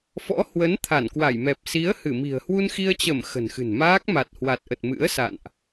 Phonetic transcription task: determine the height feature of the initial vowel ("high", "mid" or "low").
mid